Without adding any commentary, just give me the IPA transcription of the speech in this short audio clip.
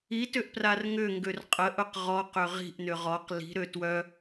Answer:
i t ʏ ʔ p r a r ŋ ʏ ŋ ɡ ø r qʼ ə ʔ ʊ q ʁ ɔ q ʏ ʁ i̤ ʔ n ʏ ʁ ɔ q l i̤ ɾ ø t w œ

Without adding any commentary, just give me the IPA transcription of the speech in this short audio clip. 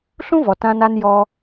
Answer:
ɬ ũ˦ v ɔ˨ t ã˧ n a˧ n j ɔ˧

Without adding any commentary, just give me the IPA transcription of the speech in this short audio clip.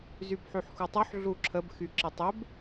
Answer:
z y b ħ y ħ x u tˤ u ħ ɮ u ǁʰ ə b x y ǁ ɪ tˤ ɪ b

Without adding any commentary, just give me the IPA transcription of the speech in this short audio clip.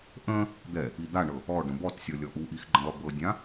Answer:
ʔ ə̃ | d̪ ɛ | i d̪ a ɳ ɤ | ɔ ɖ ə̃ b ɔ t sʲ ɔ lʲ ɔ ʔ u ʔ i x ɡ͡ǃ ə̃ lˠ ɵ b ɤ dʲ ã

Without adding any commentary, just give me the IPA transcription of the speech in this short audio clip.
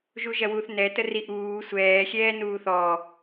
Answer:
ʒ u ʒ ɐ w uː θ n ɛ t ə r i ʔ uː sʷ ɛː xʲ ɛː n uː θ ɔː

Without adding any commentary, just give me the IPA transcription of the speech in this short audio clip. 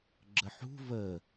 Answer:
ɡ͡ǁ ə ħ ṳ v ə

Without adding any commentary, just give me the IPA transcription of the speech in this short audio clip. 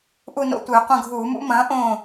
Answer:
ʔ u˦˨ n o̰˦˨ tʷ ɨː˧˩˧ qʷ ɐ̃˦˨ ɡʱ uː˧˩˧ m ṵ˦˥ m ɐ̃ː˩˥ ʔ õː˦˨

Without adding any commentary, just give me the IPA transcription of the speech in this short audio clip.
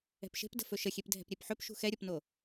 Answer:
ɛ̤ p ʃ e̤ p d ə̤ f ɵ ʃ ə xʲ e p dʱ ɛ̤ p ɾʲ e p ħ ɵ p ʃ ṳ x ɛ ɾʲ o p n o

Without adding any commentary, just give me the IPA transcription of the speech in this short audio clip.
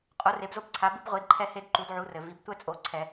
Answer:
qʼ o˩˥ r e˩˧ b z o˦ b ǀʰ a˩˧ b ɨ˦ b ʁʷ i˩˥ d ǃʰ ɛ˦ h e˦ d ǃ u˩˧ d ʕ u˩˧ r ɘ˩ v i˩˧ b tʷ ɛ˦ t͡sʼ o˩˧ ǀʰ ɛ˧˩˧

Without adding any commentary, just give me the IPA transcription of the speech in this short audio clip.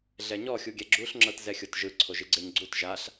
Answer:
ɮ ɛ ɲ ɔ xʲ u ɡʲ ɛ ɡ͡ǁ u ɬ ŋ͡ǁ ɤ t z ɛ xʲ o t ʒ ɯ ǀʰ o ʒ i ɡ͡ǀ e ɲ ɡ͡ǀ u t ʒ a ɬ

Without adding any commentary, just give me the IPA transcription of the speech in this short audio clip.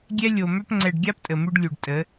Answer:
ɡʲ ɛ˦ lʲ o˨ m œ˦ p ŋ͡ǀ ɛ˨ ɖ ɡʲ a˦ p tʼ ə˨ m ʉ˦ ɖ lʲ u˨ ɖ tʼ ə˨˦

